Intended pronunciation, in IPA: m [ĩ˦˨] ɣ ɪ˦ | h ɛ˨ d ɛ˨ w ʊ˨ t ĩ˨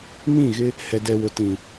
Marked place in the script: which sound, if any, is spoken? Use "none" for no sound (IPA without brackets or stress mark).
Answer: ĩ˦˨